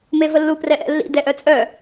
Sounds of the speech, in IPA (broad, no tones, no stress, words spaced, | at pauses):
mevəlːu prɛʔɛ̰lːḭ dɛʔœt͡sʼœ